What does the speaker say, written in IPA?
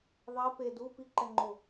ðˤ ɛ p e d u p i ǃ ɛ ŋ͡ǃ o

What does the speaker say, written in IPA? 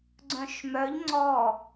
ɡ͡ǀ œ̃ ʃ m œ ʎ ŋ͡ǀ ɔ

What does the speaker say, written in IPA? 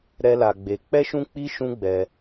ɾ ɛ˦ l a˧ ɡ͡b e˧ k͡p ɛ˦ ʃ ũ˦ k͡p i˦ ʃ ũ˦ ɡ͡b ɛ˧

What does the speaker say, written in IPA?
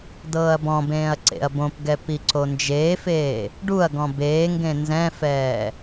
d ɤː ɐ̯ b ɔ̃ b ẽː ɐ̯ ǀ ḛ ɐ̯ b õ p ɡ ɛ p i ǀ o n d͡ʒ eː f eː | ɖ u ɐ̯ ɡ ɔ̃ b eː ŋ ɡ ẽ n z ɛ̃ f ɛː

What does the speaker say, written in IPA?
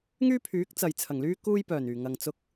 ŋ yː˥ pʰ yː˨˥ k̚ t͡s ɐ˨ j t͡sʰ ɐ˨˩ ŋ l yː˥ k uː˥ j p œː˨˩ n yː˨˩ ŋ ɐ˨ ŋ t͡s ʊ˧ k̚

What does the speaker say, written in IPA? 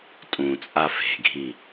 tʼ ũ t͡sʼ a f e̤ ɡʱ i

